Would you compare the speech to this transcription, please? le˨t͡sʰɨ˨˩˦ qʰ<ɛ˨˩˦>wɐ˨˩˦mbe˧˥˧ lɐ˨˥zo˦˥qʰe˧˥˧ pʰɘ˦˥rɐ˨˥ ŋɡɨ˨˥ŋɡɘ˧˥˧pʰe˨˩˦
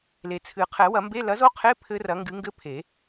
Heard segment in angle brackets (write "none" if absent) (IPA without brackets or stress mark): ɛ˨˩˦